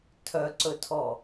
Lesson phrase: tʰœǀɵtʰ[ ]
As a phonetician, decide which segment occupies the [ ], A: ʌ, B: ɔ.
B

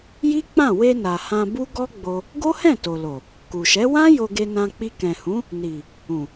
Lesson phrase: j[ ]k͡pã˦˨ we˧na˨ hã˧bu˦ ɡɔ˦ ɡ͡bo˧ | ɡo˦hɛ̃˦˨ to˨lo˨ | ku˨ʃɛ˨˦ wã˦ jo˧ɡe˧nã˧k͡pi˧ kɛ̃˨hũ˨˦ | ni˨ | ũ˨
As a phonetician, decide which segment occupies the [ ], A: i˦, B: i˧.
A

